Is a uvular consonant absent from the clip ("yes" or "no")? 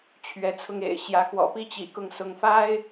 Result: yes